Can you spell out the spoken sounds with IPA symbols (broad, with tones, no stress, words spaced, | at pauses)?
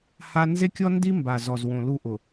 ha˦ nze˦kʲɔ˦ndi˦ mba˨zɔ˨zwõ˨ lu˦ʔʊ˨